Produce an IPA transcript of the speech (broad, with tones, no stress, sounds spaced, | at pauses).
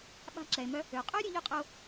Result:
ɓ a̤˧ ǁ ɛ˩ e̯ m œ˧ | ø˩ qʼ ø˥ ɾʲ ø˥ ʎ ø˥ qʼ ø˧ o̯